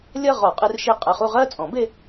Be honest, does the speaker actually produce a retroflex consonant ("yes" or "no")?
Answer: no